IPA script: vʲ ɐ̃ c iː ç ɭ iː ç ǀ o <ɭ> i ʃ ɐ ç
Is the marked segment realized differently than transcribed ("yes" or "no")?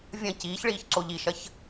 yes